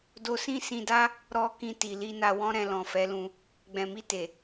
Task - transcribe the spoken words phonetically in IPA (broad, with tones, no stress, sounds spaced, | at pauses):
d o˧ s ĩ˦ s ĩ˧ d a˦ | ɾ ɔ˧ k ĩ˧ t i˨ l i˧ n a˧ w ɔ̃˦ ɾ ɛ̃˧ l ɔ̃˨ f ɛ˨˦ l ũ˧ | ɡ͡b ɛ̃˨ m i˧ t e˨